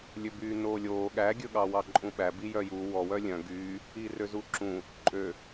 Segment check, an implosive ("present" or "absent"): present